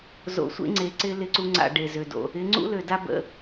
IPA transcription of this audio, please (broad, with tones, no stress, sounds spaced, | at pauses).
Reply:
z o̰˨˦ sʷ ḛ˦ ŋ͡ǀ e˨ ǀ ɪ˦ l ɪ˦˨ ǀ u˦ ŋ͡ǀ a̰˦˨ ɖ e˨ z ø˨ d o̰˨ | ɪ˨˦ ŋ͡ǀ ṵ˦ l ø˨ d a˦ b ə̰˦